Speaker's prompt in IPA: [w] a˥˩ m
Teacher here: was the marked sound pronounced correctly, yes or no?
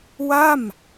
yes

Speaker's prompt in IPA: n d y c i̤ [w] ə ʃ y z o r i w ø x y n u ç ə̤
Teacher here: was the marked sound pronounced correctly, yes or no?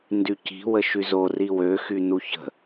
yes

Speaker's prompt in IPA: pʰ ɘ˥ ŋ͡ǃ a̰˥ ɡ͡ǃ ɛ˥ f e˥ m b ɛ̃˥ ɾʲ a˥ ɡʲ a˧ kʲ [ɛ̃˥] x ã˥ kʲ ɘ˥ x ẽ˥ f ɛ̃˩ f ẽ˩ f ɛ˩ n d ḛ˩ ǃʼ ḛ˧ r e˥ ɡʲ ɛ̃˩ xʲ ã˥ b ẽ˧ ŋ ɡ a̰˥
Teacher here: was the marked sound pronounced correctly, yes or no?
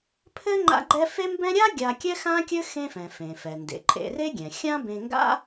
no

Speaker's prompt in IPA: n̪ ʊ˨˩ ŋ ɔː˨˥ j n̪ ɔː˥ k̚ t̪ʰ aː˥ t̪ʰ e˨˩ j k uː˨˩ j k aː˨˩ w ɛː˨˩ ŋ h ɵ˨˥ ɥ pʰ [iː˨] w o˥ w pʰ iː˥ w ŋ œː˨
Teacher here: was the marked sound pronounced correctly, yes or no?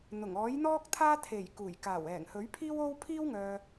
no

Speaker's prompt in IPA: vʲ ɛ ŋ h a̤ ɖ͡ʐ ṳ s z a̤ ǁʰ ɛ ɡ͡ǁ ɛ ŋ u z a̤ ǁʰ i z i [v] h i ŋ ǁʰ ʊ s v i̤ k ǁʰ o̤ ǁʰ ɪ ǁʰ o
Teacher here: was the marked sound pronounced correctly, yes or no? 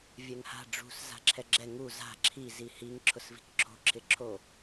no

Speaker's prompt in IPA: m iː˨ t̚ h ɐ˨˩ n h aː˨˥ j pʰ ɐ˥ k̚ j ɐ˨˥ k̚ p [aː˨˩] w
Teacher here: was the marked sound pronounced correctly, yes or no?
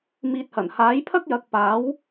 no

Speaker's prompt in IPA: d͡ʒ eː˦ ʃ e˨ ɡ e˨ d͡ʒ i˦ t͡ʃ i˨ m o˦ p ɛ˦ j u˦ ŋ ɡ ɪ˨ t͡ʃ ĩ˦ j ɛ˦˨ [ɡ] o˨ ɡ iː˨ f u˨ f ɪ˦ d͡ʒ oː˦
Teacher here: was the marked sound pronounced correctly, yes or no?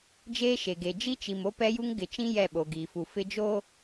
no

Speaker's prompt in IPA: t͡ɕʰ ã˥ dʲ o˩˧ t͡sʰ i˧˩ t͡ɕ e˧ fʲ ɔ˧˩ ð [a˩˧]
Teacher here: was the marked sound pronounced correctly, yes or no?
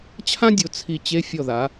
yes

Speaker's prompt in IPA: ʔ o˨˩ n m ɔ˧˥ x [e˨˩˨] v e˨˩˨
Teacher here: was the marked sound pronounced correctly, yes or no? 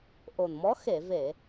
yes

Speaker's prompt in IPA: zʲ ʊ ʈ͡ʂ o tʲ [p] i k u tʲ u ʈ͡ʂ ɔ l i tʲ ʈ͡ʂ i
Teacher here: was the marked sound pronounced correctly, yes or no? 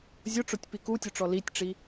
yes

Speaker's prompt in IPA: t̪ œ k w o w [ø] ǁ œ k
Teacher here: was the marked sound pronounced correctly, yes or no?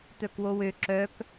yes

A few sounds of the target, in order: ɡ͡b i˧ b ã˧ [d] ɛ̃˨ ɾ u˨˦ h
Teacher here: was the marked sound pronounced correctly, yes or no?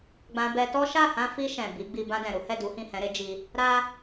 yes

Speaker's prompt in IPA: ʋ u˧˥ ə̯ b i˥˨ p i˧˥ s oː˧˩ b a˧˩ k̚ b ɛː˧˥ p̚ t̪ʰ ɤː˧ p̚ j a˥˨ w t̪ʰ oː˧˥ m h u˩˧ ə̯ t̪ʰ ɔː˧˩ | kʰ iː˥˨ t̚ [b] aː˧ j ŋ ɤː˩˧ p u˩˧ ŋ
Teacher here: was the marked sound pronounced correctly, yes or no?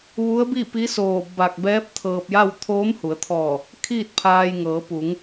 no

